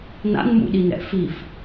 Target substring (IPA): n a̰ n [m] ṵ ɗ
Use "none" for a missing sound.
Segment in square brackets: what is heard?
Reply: m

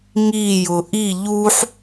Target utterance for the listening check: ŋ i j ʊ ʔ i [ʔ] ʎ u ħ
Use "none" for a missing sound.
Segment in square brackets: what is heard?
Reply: none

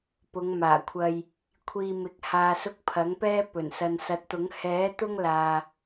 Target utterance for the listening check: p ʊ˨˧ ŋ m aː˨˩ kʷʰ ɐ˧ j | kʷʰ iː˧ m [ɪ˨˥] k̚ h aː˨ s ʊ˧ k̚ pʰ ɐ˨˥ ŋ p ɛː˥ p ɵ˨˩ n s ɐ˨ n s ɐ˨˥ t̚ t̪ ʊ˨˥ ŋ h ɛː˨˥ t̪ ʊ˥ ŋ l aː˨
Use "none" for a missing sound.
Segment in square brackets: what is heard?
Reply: ɪ˨˥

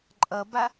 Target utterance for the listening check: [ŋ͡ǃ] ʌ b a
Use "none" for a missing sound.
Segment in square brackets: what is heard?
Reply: ǃʼ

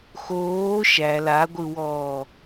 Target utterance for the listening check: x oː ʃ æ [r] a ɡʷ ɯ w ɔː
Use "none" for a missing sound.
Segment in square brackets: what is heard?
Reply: l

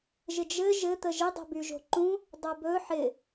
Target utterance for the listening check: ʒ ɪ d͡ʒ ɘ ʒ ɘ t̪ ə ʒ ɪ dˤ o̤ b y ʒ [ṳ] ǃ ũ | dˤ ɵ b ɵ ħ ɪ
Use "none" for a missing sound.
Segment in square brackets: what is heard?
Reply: o̤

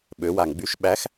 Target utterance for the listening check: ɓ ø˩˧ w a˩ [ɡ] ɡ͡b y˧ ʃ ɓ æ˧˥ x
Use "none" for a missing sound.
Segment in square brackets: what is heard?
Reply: ŋ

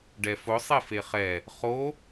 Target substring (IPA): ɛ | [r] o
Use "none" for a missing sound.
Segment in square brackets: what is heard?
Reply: χ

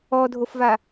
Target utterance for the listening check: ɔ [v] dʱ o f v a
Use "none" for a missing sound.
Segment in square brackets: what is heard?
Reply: none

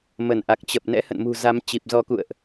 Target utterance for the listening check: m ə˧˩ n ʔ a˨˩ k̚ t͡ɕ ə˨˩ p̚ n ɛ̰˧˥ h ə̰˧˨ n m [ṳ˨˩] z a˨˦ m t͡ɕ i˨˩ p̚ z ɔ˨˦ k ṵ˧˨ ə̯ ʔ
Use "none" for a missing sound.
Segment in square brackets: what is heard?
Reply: ṳ˨˩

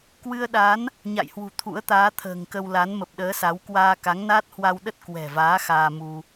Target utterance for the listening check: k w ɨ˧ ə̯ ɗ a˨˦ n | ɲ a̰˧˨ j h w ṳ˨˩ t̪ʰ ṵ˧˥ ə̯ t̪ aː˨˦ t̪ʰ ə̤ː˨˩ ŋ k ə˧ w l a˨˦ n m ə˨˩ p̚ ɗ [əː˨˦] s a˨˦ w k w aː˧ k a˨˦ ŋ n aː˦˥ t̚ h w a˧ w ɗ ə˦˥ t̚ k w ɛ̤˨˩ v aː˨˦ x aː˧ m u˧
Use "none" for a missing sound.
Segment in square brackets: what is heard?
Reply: əː˨˦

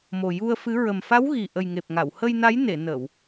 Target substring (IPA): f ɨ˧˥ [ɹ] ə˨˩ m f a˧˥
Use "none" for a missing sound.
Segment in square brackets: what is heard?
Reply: ɹ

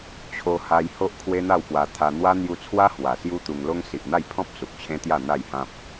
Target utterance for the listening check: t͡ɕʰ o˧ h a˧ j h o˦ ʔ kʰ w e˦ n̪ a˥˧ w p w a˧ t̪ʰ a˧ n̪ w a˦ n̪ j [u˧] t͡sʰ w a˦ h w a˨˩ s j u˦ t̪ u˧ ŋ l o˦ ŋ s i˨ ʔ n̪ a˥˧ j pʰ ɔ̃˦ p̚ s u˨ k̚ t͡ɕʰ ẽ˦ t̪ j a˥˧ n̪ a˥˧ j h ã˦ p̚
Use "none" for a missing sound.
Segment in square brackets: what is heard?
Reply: u˧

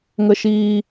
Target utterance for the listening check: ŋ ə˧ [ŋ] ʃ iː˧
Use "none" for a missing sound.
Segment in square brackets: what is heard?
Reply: none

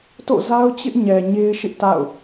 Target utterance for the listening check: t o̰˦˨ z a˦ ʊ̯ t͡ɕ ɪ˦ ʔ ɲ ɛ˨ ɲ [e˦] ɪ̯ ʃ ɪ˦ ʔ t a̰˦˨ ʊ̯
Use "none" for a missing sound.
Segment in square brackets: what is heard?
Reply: e˦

